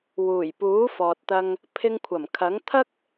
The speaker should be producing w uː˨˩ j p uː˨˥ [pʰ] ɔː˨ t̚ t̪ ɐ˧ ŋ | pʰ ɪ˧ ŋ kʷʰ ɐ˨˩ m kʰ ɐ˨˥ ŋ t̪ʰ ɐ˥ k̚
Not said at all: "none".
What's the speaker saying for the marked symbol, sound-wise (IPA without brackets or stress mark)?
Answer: f